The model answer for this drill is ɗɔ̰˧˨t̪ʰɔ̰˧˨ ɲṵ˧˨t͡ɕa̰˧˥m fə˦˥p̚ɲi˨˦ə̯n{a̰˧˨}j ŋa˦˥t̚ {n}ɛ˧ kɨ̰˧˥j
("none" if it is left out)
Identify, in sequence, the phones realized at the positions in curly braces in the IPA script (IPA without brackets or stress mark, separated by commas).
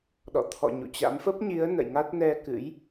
ə̰˧˨, n